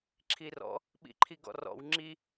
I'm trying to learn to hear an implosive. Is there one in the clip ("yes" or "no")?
yes